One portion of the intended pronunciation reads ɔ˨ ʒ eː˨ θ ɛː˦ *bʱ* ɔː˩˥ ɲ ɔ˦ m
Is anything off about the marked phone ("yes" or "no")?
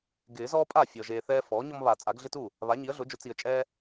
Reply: yes